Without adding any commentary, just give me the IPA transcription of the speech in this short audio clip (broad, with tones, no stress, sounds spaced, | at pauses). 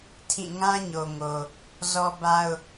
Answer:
tʰ ĩ˦˨ ŋ ã˦ ɲ o˨ ŋ o˨ | z ɔ˦ b a˦ ʊ̯